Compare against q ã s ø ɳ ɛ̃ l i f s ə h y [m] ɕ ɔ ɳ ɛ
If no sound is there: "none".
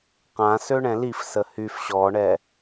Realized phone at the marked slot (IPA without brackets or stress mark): f